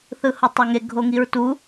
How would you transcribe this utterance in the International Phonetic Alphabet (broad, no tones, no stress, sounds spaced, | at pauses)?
θ ɯ h o tˤ ɔ ŋ e ɡʱ o ŋ i ɹ t u